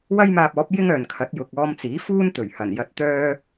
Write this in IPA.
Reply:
wɐ˥jmaː˧p̚ɔː˨˥p̚ jɪ˥ŋœː˨nkʰɐ˨˥t̚ jʊ˨k̚ ɔː˧mt͡siː˨˥ fuː˥nt̪ɵ˨˩ɥ hɐ˨˩njɐ˧t̚ t̪œː˥

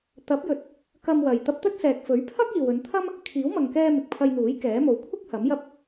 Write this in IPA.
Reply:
t̪ɐ˨˥p̚jɵ˨t̚ | kɐ˧mwɐ˨j t̪ɐ˧p̚t̪ɵ˥t̚sɛː˨k̚ fɵ˨˥ɥpʰɐ˥k̚ iː˨wɵ˨˧nt̪ʰɐ˥m | kʰiː˨˥wmɐ˨ŋkɛː˧ mɪ˨k̚pʰɐ˧jn̪uː˨˥j kɛː˨˥mo˨w kʷʰɪ˥k̚ hɐ˨˥mjɐ˥p̚

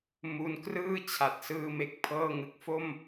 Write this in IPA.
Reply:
mu˧nkrɯː˥˩ t͡ɕʰa˨˩t̚sɯː˧me˨˩k̚ pʰɤː˥˩ŋɯ˨˩k̚ fo˥˩m

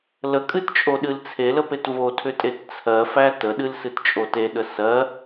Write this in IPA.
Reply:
ləkʼɨtt͡ʃʼoɗɨl t͡sʰeləpet votʰʏtʼet t͡sʰɜfæ təɗɨlsɨtt͡ʃʼo teɗə sɜ

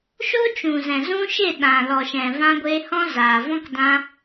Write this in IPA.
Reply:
ʃo˦t͡ʃũ˨zɛ̃˨ zũ˦ ʃe˦˨ɗã˨ lɔ˨ʃɛ̃˨vã˧ɡʷeː˧ hɔ̃˦zaː˨vɔ̃˦k dã˦

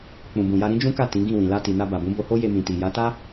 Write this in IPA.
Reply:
k͡pũ˨bũ˨ja˧ ɾĩ˦d͡ʒũ˦ka˦˨ tĩ˨˦ɡĩ˦˨wĩ˨ la˧ti˨na˧ ba˨bũ˨˦bo˧ho˦ je˧mĩ˨ti˨ja˨˦ ta˦

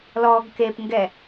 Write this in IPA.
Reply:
lɔɡ kepŋɡɛ

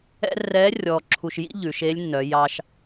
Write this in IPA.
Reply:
ɛ̰˥ rɛ˧˥ rʲɔː˧ǁʰu˧ʃjḭ˥ ʎʉ˩˧ʃe˧˥lʲnːœ˩˧ jɑ˧ʃ

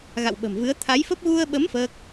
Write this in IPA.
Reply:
ɣa̰˧˨wɓə̤˨˩mvɨ˨˦ə̯ t̪ʰa˨˦jfə˦˥p̚ ɣu˧ə̯ɓə˨˦m fəː˦˥k̚

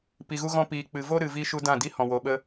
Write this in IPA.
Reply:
pi˨ɣu˧ɣɔ̃˧ piː˨k͡pɨ˨ vo˦ɾɨ˨vi˧ ʃu˧dã˦˨di˦hɔ̃˨ wo˨ɓə˧

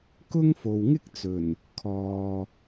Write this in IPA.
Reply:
kʊ˥ŋfo˨wŋɪ˥k̚t͡sɵ˨˩n | kʰɔː˨

